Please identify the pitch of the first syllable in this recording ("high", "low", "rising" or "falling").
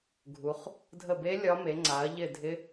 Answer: rising